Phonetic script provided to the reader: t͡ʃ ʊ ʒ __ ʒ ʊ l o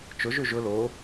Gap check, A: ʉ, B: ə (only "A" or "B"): A